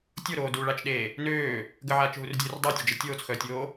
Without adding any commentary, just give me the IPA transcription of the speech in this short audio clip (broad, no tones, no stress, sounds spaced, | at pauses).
tʲ o ɾ oː d u ɭ a t͡ʃ ɗ eː | n øː | ɡ ə ʕ aː t͡ʃ ɦ u r dʲ øː r dˤ a tʲ ə d͡ʒ ə tʲ oː t͡s x œː tʲ oː